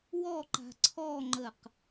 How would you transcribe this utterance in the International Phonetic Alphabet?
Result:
w ɔ ǃ a̤ ǀʰ ɔ ŋ͡ǃ ə q

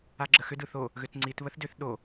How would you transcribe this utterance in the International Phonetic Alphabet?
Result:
a ɡ͡ǁ ə x ʏ d ɯ θ o | ɣ ʏ t ŋ͡ǀ i t β ə θ d ʏ θ ɗ o

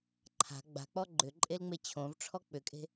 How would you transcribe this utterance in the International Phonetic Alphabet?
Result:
ǃʰ a̤ ɡ͡b a̤ k͡p ɔ ɡ͡ǃ ʏ ǃʼ e l ŋ͡m e t͡ɕʰ õ v ʈ͡ʂʰ ɔ k͡p ʏ kʼ e̤

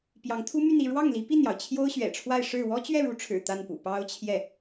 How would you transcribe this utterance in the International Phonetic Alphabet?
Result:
p j ɑ˧˥ ŋ t̪ʰ u˥ m y˥˧ n i˥˧ ɻ w ɑ˥˩ ŋ l i˧˥ p i˥˩ n j ɑ˩ ʊ̯ t͡ɕʰ j o˥ ʊ̯ ɕ ɥ ɛ̰˨˩ ʈ͡ʂʰ w a˥˧ ɪ̯ ʂ ɻ̩˥˩ w ɔ˥ t͡ɕ ɥ ɛ˥˩ ɻ u˧˥ ʈ͡ʂʰ ɻ̩˨˩ t̪ a˥˩ n p ṵ˨˩ p ɑ˥ ʊ̯ t͡ɕʰ j ɛ˥˩

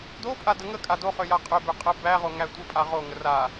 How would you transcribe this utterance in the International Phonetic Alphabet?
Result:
d o pʼ a d ə ŋ ə kʼ a d o χ ø j a qʼ ø b ø qʼ ə b æ ʁ o ŋ æ tʷ ə pʼ a ʁ o ŋ ə r a

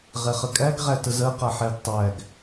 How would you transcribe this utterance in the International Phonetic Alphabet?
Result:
ʁ ɛ χ ə kʼ æ ɡ ʁ æ t ə z ɜ q a ħ ɛ ɡ tˤ æ ɡ

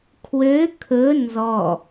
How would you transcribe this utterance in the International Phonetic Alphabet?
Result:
kʰ w ø kʰ ɵ n z ɔ

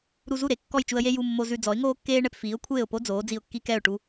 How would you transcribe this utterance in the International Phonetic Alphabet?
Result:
ɾ u˧ z u˥˩ ɾ e˩˥ kː ɔ˥˩ j t͡ʃ u˧ ə̯ j e˥ j u˧ mː o˧ z ʉ˧ d͡z ɔ˩˥ ɪ̯ ŋ oː˥ kː eː˥ ɳ ɛ˧ p f iː˩˥ ʊ̯ kʷʰ eː˥˩ ʊ̯ p o˥ d͡z oː˩˥ d͡z i˧ ʊ̯ kː i˥ k ɛ˥˩ ʊ̯ ʈ u˧

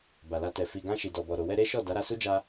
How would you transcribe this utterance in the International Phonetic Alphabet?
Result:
b a˨ l a˧ t ɛ˨ f i˨ ɡ ã˧ ʃ i˨ d ɔ˨ b ɔ˨ ɾ o˨ w ɛ˧ ɾ e˦ ʃ ɔ˦˨ d a˨˦ ɾ a˧ s u˦ d͡ʒ a˧

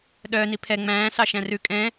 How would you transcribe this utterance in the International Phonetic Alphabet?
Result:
ɗ œː n i pʰ ɛ ŋ͡m æ̃ː s ɑ ʃ æ̃ r ʉ kʼ ɛ̃

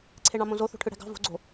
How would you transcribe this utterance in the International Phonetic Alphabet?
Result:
ǀʰ e ɳ ɑ̃ m õ z o θ o̤ ʈʰ ɯ ɽ æ̤ ɡ ɑ̤ v o̤ ɡ͡ǀ o̤

